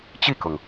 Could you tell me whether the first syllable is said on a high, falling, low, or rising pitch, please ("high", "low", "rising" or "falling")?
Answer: falling